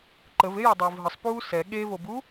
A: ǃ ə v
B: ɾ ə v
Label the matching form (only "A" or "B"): A